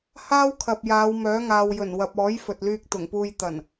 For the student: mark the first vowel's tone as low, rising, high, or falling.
high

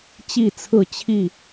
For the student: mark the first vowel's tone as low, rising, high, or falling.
falling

